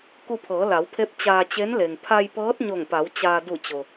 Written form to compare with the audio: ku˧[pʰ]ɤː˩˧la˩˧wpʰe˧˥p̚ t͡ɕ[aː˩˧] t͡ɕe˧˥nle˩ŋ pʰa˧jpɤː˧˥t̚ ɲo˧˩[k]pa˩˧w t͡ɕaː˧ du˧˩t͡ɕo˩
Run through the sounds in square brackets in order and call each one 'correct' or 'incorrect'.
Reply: correct, incorrect: aː˧, incorrect: ŋ

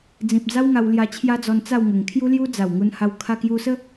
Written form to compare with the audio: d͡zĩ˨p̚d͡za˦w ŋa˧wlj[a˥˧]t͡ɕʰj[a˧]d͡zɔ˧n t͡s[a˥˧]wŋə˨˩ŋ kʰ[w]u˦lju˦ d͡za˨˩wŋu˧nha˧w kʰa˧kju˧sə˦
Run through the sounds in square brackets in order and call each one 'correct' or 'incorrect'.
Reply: incorrect: a˧, incorrect: a˦, correct, incorrect: j

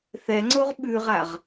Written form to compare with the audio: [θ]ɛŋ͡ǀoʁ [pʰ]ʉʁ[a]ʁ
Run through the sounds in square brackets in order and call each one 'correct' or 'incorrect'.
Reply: correct, incorrect: ɓ, correct

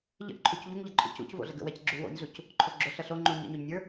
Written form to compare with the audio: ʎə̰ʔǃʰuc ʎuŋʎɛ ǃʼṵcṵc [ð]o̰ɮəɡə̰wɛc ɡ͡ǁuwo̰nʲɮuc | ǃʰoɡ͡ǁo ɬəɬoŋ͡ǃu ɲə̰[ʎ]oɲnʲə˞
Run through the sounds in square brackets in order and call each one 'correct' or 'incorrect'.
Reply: incorrect: v, incorrect: ɲ

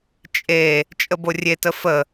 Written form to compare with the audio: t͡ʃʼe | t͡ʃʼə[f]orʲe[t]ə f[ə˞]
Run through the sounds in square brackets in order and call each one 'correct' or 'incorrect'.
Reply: incorrect: b, correct, incorrect: ə

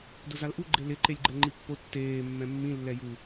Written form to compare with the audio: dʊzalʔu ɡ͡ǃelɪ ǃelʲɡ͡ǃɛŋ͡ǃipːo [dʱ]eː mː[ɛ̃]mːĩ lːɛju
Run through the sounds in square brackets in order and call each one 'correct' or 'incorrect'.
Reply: incorrect: tː, correct

